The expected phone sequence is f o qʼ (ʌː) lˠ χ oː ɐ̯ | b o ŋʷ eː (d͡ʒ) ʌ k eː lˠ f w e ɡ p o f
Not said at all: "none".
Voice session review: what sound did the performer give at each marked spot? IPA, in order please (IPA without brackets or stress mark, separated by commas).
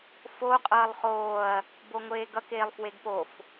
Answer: ʌː, ɡ